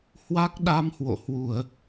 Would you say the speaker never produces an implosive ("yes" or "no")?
no